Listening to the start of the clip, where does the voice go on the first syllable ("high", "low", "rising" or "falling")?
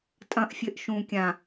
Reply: low